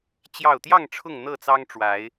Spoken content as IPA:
t͡ɕ j ɑ˥˨ ʊ̯ t̪ j ɑ˥˨ ŋ ʈ͡ʂʰ ʊ˥˨ ŋ n̪ ɤ˥˨ t͡s ɑ˦ ŋ ʈ͡ʂ w a˨˦ ɪ̯

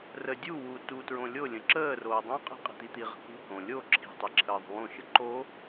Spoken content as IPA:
r ə dʲ u w u t u t ɹ õ lʲ o lʲ ə̃ ǁ əː r oː dˤ õ qʼ i̤ qʼ i̤ t̪ i t̪ i ʁ ə̤ k ṳ h õ lʲ o ǁʰ i̤ tˤ i ǁʰ əː ðˤ ṳ w õ ʃ ə ǃ o

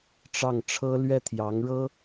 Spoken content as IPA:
ʈ͡ʂ ɑ˥˩ ŋ ʈ͡ʂʰ ɤ˥ l ɥ ɛ˥˩ t̪ʰ j ɑ˧˥ ŋ ɻ ɤ˥

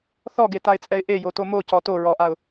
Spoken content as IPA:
θ ɔ ɡ e t a ɪ̯ t͡sʼ ɛ ɪ̯ ʔ e j o t o m o c ɔ t o ɹ ɔ ʔ a ʊ̯

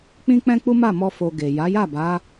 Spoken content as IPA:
k͡p ĩ˦ k͡p ɛ̃˦ k͡p u˦ m a˦˨ m ɔ˧ f o˧ ɡ e˨ j a˨˦ j a˦˨ b a˨˦

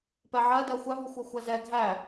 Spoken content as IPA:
p ɛ ʕ ɜ d ɜ xʷ æ v u xʷ ɜ xʷ æ z ɛ ɡʱ æ

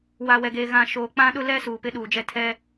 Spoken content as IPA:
w a˨ w ɛ˨ ɡ eː˨ ɣ ã˨ ʃ oː˨ k͡p ã˦ ɗ ʊ˦ l ɛ˦ s uː˨ p ɪ˦ ɗ uː˨ d͡ʒ ɛ˦ tʰ ɛ˦

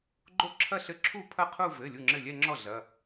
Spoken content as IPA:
ɡ͡ǃ o˥˩ ǁʰ ɐ˥˧ ɬ ɘ˥˩ ǁʰ u˥˩ pʰ ɐ˥˩ qʰ u˥˧ v ɘ˩˧˩ lʲ u˥˩ ŋ͡ǁ ɘ˥˩ lʲ ɛ˥˧ ŋ͡ǁ ɔ˥˩ ɮ ɐ˩˧˩

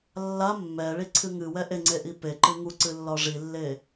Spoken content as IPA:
lː a mː ɛ ɭ i ǀʰ ɨ ŋ ɨ w ɛ ʔ e ŋ͡ǀ e ʔ i p e ǃ ɨ ŋ u ǀ ɨ lː ɒ ʐ i lː e

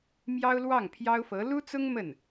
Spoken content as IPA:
m j ɑ˥ ʊ̯ l w ɑ˥˩ ŋ pʰ j ɑ˥ ʊ̯ f ɤ˧˥ l u˥ t͡s ʊ˥ ŋ m ə˥˩ n

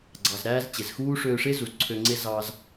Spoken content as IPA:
ɡ͡ǀ ɑ˩ z ɾ æː˧ z t͡ɕ e˩ z x uː˥ ʂ øː˧ ʂ e˥ z u˩ z ǀʰ ø˧ ŋ͡ǀ e˥ z ɑ˧ z

